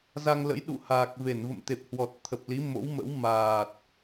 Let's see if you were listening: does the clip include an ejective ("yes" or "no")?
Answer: no